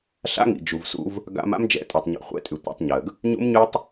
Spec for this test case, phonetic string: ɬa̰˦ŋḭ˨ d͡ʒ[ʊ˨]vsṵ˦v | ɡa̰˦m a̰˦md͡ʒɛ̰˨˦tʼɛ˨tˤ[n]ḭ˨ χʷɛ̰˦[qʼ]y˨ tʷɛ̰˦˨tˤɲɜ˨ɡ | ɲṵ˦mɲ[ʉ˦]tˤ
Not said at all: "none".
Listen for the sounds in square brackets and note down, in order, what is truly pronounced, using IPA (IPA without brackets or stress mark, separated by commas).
u˨, ɲ, tʼ, ʉ˦